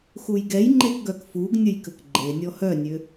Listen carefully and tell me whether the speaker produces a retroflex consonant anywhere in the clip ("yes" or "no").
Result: no